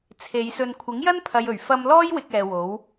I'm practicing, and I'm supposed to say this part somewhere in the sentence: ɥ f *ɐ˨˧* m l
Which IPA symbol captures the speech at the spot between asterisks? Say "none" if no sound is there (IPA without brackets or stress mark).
ɐ˧